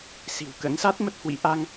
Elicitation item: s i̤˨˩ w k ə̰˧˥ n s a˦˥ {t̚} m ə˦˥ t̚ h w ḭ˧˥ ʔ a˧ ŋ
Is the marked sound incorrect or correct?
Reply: correct